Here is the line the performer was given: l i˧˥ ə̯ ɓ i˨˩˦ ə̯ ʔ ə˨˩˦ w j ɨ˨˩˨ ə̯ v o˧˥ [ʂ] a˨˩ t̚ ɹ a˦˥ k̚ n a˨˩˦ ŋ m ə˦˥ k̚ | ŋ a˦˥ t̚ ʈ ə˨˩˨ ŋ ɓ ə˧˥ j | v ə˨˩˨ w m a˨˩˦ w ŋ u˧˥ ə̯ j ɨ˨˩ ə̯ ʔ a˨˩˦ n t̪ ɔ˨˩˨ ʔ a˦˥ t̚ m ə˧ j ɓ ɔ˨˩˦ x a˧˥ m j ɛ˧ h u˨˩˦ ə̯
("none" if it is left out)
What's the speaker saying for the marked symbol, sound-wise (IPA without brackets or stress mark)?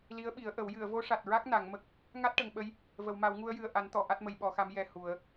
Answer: ʂ